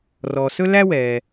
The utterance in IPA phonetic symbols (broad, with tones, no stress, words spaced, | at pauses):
rɔː˨sɵ˥læ˥wɛː˨